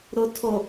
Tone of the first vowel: low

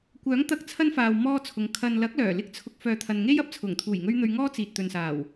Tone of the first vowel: rising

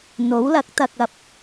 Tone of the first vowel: rising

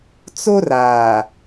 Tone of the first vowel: high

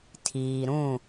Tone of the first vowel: low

